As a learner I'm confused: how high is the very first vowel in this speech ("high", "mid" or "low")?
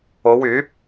mid